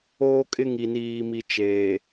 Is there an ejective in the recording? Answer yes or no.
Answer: yes